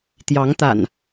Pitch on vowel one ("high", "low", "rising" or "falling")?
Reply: rising